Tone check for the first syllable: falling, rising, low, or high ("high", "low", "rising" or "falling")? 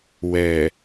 low